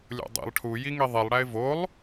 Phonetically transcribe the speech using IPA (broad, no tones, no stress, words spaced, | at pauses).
lʲo̰dˤḭlˠ ʈʰujiŋi ðˤilˠɽæɪ̯ volˠ